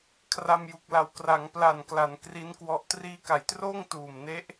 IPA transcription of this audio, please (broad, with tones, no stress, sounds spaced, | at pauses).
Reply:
kʰ r a˧ m j u˨˩ k̚ l a˨˩ w k r a˩˦ ŋ p l a˨˩ n k l a˩˦ n k r i˦˥ n k w ɔ˦˥ ʔ t r iː˦˥ k a˨˩ j t r oː˥˩ ŋ t uː˨˩ m n e˦˥ ʔ